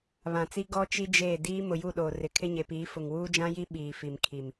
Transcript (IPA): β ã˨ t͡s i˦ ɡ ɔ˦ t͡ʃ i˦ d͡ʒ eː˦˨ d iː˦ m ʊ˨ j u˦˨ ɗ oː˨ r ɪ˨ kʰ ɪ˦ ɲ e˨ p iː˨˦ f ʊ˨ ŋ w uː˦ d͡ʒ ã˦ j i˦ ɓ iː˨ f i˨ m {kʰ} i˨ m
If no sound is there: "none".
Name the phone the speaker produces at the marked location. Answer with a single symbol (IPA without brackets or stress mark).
kʰ